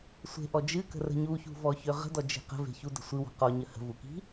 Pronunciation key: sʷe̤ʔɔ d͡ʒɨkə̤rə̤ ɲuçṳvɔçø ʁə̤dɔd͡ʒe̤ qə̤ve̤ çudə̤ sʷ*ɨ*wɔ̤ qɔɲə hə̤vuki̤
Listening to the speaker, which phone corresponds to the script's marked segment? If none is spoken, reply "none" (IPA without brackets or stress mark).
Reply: ɨ